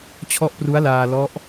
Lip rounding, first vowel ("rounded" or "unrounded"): rounded